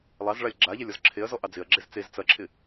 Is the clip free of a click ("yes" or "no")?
no